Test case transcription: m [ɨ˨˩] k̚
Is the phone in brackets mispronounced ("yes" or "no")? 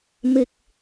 no